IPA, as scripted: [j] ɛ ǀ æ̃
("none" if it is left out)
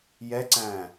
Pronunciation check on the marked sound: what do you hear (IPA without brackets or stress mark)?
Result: j